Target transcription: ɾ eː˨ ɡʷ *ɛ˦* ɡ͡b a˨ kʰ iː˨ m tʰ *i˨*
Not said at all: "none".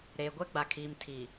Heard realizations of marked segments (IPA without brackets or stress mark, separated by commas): ɛ˦, i˨